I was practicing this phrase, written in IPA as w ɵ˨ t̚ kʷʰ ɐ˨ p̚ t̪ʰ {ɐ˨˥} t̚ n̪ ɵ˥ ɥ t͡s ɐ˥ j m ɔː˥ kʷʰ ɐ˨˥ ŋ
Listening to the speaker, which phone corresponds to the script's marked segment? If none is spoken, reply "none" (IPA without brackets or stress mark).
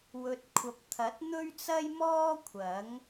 ɐ˨˥